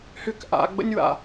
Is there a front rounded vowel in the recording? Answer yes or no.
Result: yes